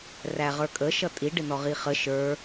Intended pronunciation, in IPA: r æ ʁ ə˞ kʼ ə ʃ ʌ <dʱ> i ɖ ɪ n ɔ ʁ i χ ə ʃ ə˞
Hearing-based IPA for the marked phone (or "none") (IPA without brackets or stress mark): tʼ